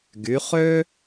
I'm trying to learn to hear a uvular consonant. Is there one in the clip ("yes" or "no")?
yes